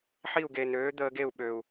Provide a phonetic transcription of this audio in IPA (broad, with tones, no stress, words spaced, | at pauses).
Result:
ħi˥˧u̯ɡe˧nøː˦˥ d̪əː˦˥ɡe˥˧u̯ ɓø˧u̯